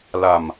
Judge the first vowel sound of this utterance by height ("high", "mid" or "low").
low